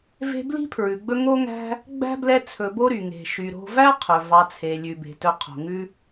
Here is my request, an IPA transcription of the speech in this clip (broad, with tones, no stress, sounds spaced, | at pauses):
v e̤˦ b l i̤˥ pʰ ɹ ʉ˩ ɡ͡b ɵ˦ ŋ o˦ ŋ æ̤˦ | ɡ͡b æ̤˥ b l ɛ˦ t͡sʰ ɵ˨ b o˥ ɾ y˩ ŋ e̤˩ ʃ y˨ ɾ o̤˦ v æ˥ qʰ ɵ˩ v ɑ˨ t͡sʰ e˩ lʲ ʉ˩ b e̤˩ t ɵ˨ qʰ o̤˩ ŋ ʉ˦